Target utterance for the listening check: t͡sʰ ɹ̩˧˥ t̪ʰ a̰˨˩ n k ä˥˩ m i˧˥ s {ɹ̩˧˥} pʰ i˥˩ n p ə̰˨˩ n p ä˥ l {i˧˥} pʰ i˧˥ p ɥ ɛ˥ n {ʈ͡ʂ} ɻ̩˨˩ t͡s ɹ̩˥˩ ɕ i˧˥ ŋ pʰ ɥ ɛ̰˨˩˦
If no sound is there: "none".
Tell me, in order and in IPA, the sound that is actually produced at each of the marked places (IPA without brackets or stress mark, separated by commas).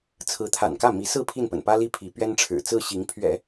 ɹ̩˥˧, i˥, ʈ͡ʂʰ